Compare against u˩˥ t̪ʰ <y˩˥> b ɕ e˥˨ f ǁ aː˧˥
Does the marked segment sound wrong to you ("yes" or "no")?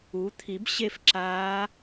yes